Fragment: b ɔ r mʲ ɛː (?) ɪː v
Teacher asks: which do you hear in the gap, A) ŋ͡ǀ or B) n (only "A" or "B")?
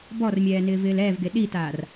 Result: B